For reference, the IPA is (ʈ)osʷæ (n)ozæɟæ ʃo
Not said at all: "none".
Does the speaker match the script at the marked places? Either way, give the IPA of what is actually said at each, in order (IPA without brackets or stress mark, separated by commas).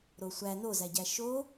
ɾ, n